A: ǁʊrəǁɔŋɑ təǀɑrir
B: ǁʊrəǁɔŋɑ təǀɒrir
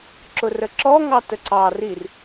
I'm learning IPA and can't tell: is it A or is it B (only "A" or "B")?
A